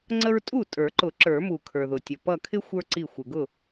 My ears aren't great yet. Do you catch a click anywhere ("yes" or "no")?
yes